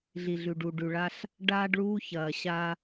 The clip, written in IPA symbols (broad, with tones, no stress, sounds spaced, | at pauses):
ɮ i˨ ɮ ʉ˨ ɖ u˨ ɖ ʉ˨ ɭ a˦ ɬ | ɖ aː˦ ɖ ɭ uː˦ ç ɐː˨ ɕ a˦